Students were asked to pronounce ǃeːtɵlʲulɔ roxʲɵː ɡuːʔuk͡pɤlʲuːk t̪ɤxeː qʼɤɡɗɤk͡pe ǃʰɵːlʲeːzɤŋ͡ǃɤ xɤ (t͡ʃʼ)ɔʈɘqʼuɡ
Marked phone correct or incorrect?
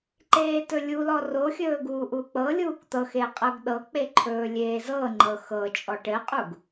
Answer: correct